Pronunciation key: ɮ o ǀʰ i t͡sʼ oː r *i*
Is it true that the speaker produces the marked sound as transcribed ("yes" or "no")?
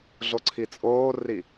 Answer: yes